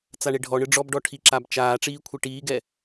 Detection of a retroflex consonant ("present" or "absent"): present